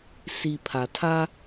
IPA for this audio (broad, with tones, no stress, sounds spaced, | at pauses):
s i˨ pʰ a˨ tʰ a˦